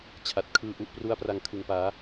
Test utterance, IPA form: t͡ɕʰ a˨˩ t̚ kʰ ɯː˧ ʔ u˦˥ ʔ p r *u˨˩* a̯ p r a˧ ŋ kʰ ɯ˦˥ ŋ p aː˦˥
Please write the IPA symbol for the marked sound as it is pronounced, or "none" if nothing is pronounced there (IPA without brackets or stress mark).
u˦˥